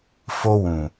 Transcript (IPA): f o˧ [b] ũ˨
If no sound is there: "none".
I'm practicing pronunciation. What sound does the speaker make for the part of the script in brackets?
w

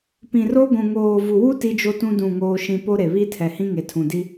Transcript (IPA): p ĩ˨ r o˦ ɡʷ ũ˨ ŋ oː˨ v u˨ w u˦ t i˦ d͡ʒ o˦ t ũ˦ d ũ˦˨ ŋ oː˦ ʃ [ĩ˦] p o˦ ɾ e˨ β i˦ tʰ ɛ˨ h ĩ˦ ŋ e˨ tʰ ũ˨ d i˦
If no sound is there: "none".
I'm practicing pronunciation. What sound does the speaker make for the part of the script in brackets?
ĩ˦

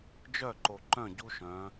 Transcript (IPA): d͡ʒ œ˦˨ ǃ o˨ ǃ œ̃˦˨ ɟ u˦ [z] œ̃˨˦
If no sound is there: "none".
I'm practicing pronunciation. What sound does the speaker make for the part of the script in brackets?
ʃ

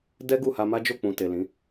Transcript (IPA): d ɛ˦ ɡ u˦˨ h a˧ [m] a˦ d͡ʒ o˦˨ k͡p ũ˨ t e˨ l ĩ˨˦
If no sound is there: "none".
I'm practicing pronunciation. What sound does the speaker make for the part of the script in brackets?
m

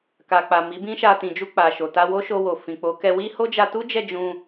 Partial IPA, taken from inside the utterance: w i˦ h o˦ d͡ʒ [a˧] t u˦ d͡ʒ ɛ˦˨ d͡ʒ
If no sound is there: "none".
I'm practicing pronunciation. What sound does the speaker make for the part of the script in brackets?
a˧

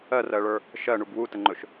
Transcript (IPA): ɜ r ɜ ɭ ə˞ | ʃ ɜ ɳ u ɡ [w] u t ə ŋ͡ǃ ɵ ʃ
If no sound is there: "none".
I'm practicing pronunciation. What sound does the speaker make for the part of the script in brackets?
w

